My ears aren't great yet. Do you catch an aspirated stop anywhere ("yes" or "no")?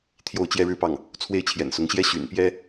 yes